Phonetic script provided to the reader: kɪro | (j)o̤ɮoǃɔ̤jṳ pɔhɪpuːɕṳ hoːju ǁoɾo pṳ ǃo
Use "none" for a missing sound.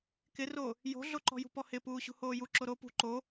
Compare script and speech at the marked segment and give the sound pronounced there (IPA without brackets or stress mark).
j